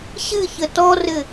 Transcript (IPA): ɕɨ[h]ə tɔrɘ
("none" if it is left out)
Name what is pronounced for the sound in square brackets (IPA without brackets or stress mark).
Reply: ç